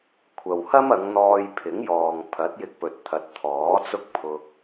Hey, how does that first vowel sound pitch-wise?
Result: low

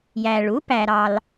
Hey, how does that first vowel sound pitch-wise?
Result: low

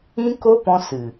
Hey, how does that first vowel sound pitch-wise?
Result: high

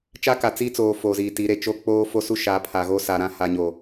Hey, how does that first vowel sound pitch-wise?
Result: high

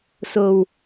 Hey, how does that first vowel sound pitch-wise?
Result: low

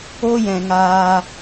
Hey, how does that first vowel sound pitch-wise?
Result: high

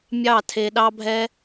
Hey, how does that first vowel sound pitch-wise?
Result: falling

